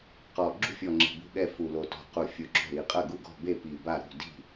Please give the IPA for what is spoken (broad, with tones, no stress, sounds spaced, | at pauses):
q ɔ˨˩ ɡ͡ǁ ṳ˥˩ fʲ ɔ˨˩ ŋ͡ǁ i̤˨˩ b ṳ˥˩ ɠ ɛ˥˩ f u˨˩ l o˨˩ t ɔ̤˨˩ q u˨˩ fʲ u˨˩ ɡ͡ǁ ɔ̤˥˩ ɾ i˨˩ qʼ ɐ˥˩ ɡ u˥˩ ɡ ɔ̤˥˩ b e˥˩ p i˨˩ b a˥˩ ɾ ṳ˥˩ d i̤˥˩